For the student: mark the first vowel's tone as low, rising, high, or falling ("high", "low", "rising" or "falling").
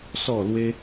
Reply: falling